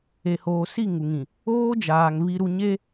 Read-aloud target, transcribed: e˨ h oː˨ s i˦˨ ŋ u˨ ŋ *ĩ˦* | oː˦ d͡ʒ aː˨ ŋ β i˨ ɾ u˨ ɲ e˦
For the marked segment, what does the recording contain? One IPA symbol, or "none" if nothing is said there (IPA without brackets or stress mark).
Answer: ĩ˨